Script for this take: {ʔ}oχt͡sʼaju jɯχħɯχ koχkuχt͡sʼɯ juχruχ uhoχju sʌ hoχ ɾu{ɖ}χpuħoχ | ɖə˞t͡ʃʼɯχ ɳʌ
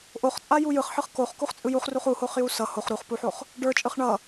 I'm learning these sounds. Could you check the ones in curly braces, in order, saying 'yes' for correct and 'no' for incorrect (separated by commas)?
yes, no